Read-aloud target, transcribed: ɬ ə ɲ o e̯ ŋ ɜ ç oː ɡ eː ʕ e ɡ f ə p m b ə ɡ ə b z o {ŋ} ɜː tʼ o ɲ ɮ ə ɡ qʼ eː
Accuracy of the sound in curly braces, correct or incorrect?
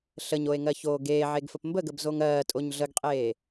correct